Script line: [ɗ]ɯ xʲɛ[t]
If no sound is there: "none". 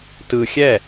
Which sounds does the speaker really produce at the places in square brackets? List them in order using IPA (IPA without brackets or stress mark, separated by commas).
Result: t, none